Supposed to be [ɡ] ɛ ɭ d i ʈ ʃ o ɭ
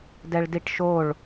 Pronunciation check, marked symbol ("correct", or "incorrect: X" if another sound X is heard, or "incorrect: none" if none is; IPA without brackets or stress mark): incorrect: d